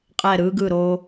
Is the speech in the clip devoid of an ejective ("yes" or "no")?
no